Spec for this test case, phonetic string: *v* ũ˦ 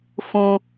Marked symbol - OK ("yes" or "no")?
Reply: no